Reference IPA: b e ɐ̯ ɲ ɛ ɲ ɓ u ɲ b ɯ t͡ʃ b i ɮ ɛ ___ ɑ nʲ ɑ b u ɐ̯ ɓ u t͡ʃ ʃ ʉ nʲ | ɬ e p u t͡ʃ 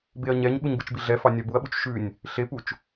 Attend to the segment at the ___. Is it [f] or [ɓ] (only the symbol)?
f